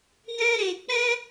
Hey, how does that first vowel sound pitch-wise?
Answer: high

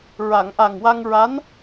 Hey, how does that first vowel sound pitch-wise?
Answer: low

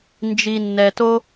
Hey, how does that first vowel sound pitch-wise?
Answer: low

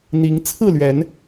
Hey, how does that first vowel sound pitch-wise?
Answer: rising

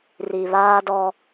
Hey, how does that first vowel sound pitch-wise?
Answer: low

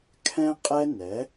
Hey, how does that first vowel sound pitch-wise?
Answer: high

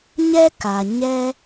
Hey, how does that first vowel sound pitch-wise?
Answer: high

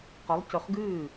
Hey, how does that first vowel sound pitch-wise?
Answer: rising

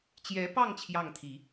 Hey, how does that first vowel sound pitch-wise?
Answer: rising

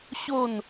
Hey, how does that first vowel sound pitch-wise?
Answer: falling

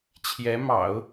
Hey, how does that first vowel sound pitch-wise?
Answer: rising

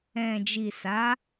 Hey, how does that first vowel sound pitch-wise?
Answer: low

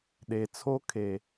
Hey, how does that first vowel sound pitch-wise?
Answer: low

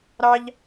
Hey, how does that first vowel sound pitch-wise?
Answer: high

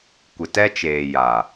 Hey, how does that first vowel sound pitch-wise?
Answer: low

